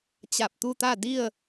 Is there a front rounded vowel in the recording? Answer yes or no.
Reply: no